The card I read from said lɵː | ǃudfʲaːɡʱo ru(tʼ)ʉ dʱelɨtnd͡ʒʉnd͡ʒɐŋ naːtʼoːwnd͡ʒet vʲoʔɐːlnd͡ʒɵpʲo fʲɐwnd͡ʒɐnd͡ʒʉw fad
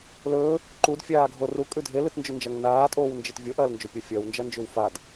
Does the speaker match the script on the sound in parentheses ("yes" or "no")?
no